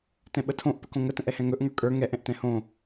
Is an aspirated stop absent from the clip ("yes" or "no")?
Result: no